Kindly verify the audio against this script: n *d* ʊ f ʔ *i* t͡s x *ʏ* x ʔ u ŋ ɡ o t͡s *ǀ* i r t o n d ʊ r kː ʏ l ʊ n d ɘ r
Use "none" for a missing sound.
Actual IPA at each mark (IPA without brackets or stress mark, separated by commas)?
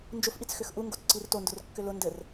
d͡ʒ, i, ʏ, ǀ